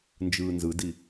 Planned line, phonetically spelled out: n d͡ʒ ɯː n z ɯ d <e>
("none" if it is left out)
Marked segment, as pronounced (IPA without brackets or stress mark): i